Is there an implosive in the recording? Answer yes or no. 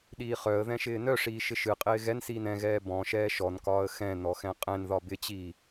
yes